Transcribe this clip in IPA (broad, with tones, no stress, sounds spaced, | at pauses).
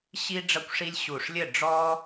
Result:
ɕ i˦ ɖ͡ʐ ɐ˦ kʷ ʂ i˦ lʲ ɕ u˧˩ ʂ lʲ ɘ˥˨ ɖ͡ʐ ɔ˦